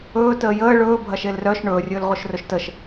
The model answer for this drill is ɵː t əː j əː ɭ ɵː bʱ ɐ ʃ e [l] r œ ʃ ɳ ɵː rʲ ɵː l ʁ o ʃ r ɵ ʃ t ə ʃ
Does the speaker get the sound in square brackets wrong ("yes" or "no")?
no